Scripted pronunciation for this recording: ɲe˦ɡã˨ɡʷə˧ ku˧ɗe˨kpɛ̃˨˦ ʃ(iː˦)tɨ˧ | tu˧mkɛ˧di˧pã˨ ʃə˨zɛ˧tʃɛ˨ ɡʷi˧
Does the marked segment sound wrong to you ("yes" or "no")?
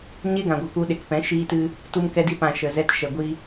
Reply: yes